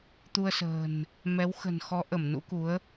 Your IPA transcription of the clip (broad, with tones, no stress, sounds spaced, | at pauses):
t̪ u˧ ə̯ s ə̤ː˨˩ n | m ɛ˨˦ w x ə̤˨˩ n x ɔ˨˦ ʔ ə˧˩ m n ṵ˧˥ k u˨˦ ə̯